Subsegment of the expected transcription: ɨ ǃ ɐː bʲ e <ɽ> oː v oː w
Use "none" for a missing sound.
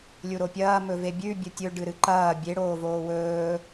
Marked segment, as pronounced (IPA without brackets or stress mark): ɽ